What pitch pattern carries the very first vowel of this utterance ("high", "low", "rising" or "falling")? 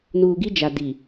low